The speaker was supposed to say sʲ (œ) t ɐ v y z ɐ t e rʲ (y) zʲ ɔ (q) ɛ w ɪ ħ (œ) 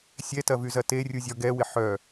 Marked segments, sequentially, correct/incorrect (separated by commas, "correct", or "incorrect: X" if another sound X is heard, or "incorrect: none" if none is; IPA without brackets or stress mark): incorrect: ɛ, incorrect: u, incorrect: ɡ, correct